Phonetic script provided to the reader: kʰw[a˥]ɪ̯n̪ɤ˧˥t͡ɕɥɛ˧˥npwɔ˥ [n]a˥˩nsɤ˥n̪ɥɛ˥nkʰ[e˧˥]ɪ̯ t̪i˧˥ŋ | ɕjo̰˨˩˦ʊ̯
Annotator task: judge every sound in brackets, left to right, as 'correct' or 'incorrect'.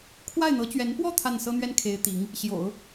incorrect: a˥˩, incorrect: t̪ʰ, correct

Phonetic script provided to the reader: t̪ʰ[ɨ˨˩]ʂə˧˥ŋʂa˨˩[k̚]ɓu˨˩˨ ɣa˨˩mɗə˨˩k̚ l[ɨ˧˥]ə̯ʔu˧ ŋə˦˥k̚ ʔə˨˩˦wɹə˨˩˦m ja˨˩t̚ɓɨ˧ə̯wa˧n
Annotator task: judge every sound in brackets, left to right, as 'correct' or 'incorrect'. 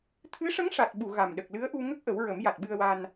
incorrect: ɨ˧˥, incorrect: t̚, correct

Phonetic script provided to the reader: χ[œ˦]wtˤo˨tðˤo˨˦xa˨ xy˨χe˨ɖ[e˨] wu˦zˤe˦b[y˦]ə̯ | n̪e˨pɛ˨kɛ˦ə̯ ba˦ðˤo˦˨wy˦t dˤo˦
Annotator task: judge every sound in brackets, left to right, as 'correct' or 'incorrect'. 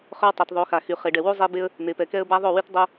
correct, incorrect: ɛ˨, incorrect: e˦

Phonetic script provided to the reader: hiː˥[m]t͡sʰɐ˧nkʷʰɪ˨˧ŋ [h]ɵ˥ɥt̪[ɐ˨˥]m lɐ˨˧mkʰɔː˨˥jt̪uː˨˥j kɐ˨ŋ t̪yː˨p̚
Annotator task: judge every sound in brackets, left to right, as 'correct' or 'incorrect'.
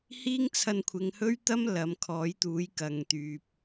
incorrect: ŋ, correct, incorrect: ɐ˥

